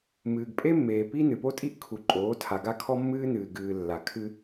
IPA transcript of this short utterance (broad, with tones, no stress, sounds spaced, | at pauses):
m ɨː˨ ɡ pʼ e˦ mː eː˨ p i˦ n ɨ˨ p o˦ tʼ i˦ ʔ kʰ u˨ ǃʼ oː˨˦ tʰ a˨ ɡ a˦ kʰ ɔ˦ mː ɨː˦ n ɨː˨ ɡ ɨː˨ lː a˨ kʰ ɨ˦